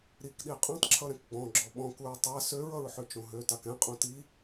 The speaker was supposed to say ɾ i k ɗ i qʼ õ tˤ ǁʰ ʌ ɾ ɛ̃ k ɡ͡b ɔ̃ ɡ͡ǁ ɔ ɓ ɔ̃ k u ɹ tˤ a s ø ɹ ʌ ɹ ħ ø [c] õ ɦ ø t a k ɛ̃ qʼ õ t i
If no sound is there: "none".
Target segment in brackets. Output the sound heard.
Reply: t͡ʃ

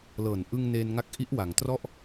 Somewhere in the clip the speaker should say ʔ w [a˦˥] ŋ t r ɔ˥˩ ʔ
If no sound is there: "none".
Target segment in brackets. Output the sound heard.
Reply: a˩˦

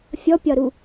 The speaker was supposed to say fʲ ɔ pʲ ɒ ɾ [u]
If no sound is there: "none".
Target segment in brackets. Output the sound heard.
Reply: u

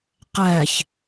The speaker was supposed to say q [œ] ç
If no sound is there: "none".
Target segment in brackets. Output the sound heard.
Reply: æ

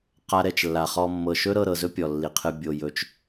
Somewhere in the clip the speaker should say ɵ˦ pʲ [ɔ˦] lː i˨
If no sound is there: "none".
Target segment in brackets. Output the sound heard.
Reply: ɔ˨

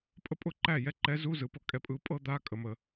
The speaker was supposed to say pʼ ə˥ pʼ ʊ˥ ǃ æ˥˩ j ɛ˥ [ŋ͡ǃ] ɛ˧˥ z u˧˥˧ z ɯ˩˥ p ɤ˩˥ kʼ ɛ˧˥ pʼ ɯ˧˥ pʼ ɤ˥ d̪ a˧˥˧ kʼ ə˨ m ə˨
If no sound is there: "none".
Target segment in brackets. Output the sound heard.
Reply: ǃ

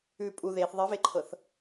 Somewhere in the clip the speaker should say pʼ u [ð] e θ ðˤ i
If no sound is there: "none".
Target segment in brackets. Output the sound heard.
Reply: ð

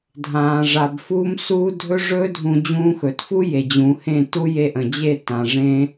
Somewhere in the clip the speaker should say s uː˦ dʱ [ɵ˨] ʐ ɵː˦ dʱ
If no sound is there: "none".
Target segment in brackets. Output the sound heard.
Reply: ɵ˦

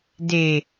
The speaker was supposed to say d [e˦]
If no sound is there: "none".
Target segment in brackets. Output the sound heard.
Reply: e˨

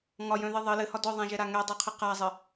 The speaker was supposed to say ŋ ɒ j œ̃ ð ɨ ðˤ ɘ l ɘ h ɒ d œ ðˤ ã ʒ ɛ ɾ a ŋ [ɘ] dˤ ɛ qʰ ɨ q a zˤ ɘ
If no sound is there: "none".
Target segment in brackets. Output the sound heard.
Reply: ɛ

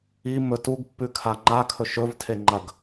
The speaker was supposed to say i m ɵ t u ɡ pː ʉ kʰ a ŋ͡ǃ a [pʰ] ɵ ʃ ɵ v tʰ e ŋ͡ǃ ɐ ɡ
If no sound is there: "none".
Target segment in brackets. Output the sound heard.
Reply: kʰ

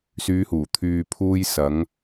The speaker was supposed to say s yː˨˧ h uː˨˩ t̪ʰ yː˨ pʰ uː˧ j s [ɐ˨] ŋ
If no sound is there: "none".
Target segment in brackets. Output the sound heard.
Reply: ɐ˨˧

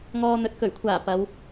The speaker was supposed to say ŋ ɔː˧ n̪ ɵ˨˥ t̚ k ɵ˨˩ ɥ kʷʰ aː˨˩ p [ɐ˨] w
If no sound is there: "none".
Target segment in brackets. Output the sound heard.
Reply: ɐ˨˧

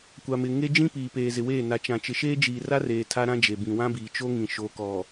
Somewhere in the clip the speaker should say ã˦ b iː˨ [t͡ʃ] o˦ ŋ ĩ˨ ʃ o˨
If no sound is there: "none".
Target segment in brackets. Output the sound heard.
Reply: t͡ʃ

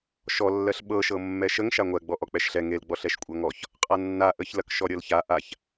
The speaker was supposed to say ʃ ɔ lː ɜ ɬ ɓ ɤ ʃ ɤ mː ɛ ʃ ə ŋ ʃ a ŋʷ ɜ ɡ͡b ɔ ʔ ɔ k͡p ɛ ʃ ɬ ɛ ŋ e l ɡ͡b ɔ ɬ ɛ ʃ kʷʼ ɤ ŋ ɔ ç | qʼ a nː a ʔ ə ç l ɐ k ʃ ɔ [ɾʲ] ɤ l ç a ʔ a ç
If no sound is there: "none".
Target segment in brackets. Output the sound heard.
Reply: ɾʲ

